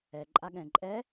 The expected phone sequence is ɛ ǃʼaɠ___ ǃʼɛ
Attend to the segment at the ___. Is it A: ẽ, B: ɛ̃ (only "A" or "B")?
B